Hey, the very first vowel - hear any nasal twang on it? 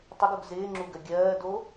no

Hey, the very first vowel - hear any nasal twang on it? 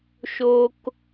no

